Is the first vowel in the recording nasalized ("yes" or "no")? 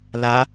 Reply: no